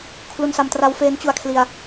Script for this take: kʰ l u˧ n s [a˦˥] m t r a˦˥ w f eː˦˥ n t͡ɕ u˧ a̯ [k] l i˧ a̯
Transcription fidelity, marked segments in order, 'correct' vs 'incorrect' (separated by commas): incorrect, incorrect